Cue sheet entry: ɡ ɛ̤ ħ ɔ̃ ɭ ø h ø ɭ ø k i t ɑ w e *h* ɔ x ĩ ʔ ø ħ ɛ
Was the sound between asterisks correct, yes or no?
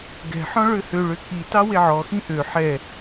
no